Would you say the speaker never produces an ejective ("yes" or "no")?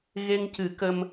yes